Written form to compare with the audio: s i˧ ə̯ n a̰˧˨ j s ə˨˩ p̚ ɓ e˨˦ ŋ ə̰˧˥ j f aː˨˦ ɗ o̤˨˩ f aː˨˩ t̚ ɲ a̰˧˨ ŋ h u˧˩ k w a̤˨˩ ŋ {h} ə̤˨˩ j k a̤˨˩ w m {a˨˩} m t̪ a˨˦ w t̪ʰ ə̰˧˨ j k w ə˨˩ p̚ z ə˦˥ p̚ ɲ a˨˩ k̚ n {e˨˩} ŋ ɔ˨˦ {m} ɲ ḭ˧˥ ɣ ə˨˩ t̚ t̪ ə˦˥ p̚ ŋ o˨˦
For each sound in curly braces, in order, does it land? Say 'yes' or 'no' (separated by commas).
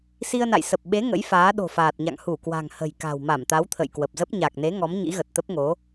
yes, no, no, yes